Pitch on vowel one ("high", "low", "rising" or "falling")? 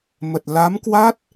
low